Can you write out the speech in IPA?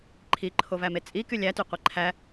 ǃʰ i ǃʰ o v æ m e t͡sʼ i k y lʲ æ t y qʷ i ǃʰ æ

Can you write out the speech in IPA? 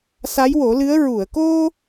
s a˧˥ j w o˨˩˦ l ɨ˧˥ ə̯ ɹ u˨˩˨ ə̯ k o˧

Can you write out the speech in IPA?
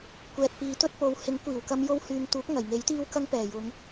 kʷ ɛː˨ t̚ p iː˨˧ t̪ ɵ˥ t̚ p o˨˧ w h ɪ˨˥ ŋ kʷ iː˨˩ w k ɐ˧ m j o˧ w h yː˨ ŋ t̪ uː˨˥ k̚ ŋ ɐ˨˩ j ŋ e˨˥ j t̪ iː˥ w k ɐ˥ ŋ p ɛː˨˩ j ʊ˨˧ ŋ

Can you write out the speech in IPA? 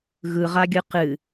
ɣ ɯ ʁ a ɡʲ ɯ q ɨ

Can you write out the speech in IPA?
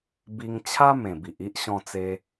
b i˧ ŋ t͡ɕʰ a˦ m ẽ˨˩ b i˨ ʔ i˦ ʔ ɕ ɔ̃˧ t͡s e˧

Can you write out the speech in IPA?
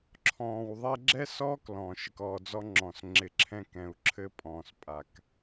ǁʰ ɔ̃ː˨ w ðˤ ɛ˧ ɡ͡ǁ ɛ˦ s ɔː˦ k l ɔ̃˨ ʃ ɪ˨ k ɔː˨ d͡z ɔ˧ ŋ͡ǁ ɔ̃˨ s ŋ͡ǁ ɪ˨ ǁʰ ɛ̃˧ k ɛ̃˨ u̯ ǁʰ ɘ˧ pʼ ɔ̃ː˨ s pʼ a˨ k

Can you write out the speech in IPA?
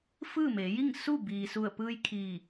f ɯː˥˨ m e˩˧ j i˥˨ ŋ s u˥˨ b iː˩ s u˧˩ ə̯ p ɯː˧ j kʰ iː˧˩

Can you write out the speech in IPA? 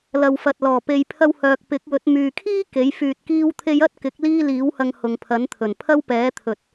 l ɐ˨ w f ɐ˨ t̚ l ɔː˨˩ p e˨ j pʰ ɐ˧ w h œː˨ k̚ p ɪ˨˥ k̚ w ɵ˨˥ t̚ m yː˨ kʰ iː˥ k e˨˥ j f yː˧ t̚ k iː˥ w t̪ʰ e˥ j ɐ˥ t̚ k ɪ˨˥ k̚ l iː˥ l iː˨˥ w h ɐ˧ ŋ h ʊ˨ ŋ pʰ ɐ˨˥ n t̪ʰ ɵ˨˩ n pʰ ɐ˥ w p ɛː˨˥ t̪ʰ ɵ˨ t̚

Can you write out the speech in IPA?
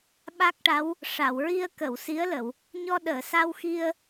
ɓ a˦˥ k̚ ʈ a˧˥ w | ʂ a˨˩˨ w ɹ i˧ ə̯ k ə˨˩˨ w s i˧˥ ə̯ l ə˨˩˨ w | ɲ ɔ˧ ɗ əː˨˩˨ s a˧ w x i˧ ə̯

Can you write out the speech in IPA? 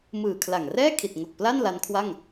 m ɯː˨˩ kʰ l a˨˩ ŋ r ɛː˥˩ kʰ i˨˩ t̚ ŋ o˨˩ k̚ p l a˥˩ n l a˦˥ n kʰ w a˥˩ ŋ

